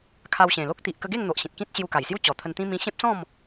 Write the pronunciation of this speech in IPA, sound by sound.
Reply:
kʰa˧wɕẽ˨˩lo˦k̚ t̪i˨ʔkə˧ɡe˥˧ŋ n̪o˨ʔɕĩ˨t̚kĩ˦t̚ ɕju˧ka˨˩jsju˦ t͡ɕɔ˨˩t̪ʰə˧nt̪ĩ˦ mĩ˧ɕẽ˦p̚sɔ̃˥˧m

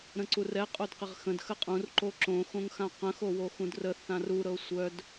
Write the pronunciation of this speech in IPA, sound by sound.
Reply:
ɾə̃ǀurɛ qʼodqɪʁxə̃d xəqʼũr ǃoǁõ xõŋxãqə̃ xowoxũdrə θãru ɾɤsʷœd

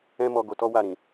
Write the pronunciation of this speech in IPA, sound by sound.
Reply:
ɛ̃˦mɔ˧ ɡo˧tɔ˦wa˦˨ɾĩ˨

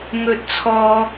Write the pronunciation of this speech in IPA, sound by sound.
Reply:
ŋɵ˧t̚t͡sʰɔː˧

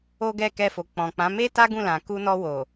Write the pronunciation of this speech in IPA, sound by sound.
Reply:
o˦ɡɛ˦˨ kɛ˧fo˨ k͡pɔ̃˨k͡pã˨˦ me˦ta˦ ɡũ˦˨lã˨ ku˧nɔ˧wo˨

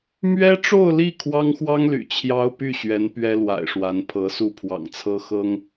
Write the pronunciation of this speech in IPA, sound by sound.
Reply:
mɥɛ˥ʈ͡ʂo˥˧ʊ̯li˥˩ kʰwɑ˥ŋxwɑ˥ŋly̰˨˩ t͡ɕʰjɑ˥ʊ̯py˥˩ɕɥɛ˧˥n pɥɛ˥lwa̰˨˩ɪ̯ʂwa˧˥n pʰɤ˧˥su˥˩pʰwɑ̰˨˩ŋt͡sʰɤ˥ xɤ˥ŋ

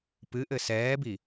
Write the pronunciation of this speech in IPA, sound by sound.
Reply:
pɨ ʔɘsɛːbi

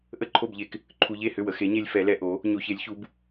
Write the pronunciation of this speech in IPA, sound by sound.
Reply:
ʔə˥˨ǃʰo˥˨bʎe˧k | ǃʰu˧ʎe˥˨hʏ˥˨wə˧ xe˨˥ɲe˧lʲ fɛ˨˥lɛ˧ʔo˨˥ | ɲo˧çe˨˥lʲçu˨˥b

